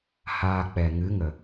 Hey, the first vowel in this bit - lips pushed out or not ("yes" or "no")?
no